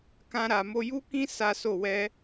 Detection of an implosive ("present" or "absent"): absent